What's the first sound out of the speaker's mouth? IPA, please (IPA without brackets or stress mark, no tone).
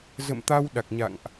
z